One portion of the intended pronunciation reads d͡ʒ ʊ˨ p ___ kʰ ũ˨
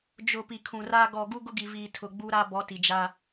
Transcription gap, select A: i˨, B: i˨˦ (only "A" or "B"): A